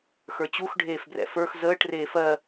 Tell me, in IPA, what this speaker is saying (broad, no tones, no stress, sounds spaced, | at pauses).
x ə˞ t͡ɕ u x ɖʱ eː f b r ɛ̰ f ə˞ x z əː ʈ r eː f ɜ